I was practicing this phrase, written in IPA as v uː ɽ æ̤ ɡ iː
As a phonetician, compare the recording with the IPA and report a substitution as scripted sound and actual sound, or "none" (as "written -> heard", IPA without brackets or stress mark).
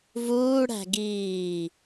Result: none